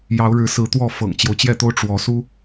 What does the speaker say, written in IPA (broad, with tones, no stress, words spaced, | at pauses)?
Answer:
jɑ˨˦ʊ̯ɻɻ̩˨˦sɹ̩˨˦t̪wɔ˥˨ fɤ̰˨˩ŋt͡ɕjo˦ʊ̯t͡ɕjɛ˥˨t̪o˦ʊ̯ ʈ͡ʂwɔ˨˦ su˦